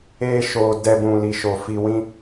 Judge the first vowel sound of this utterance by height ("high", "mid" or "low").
mid